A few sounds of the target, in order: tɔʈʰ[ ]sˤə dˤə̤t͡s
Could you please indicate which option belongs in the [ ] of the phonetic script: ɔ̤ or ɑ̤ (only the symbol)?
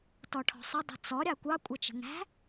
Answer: ɔ̤